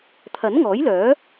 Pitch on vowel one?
rising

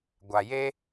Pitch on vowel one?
low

